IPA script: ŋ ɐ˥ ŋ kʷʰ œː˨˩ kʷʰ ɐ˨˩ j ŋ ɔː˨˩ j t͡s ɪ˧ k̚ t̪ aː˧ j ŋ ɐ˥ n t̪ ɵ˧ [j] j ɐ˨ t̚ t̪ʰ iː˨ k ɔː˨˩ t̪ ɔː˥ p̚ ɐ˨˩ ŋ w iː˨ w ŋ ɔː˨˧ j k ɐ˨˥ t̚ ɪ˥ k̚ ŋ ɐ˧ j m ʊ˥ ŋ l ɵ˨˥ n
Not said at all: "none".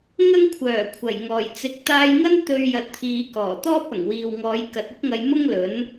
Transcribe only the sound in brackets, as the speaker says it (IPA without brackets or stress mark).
ɥ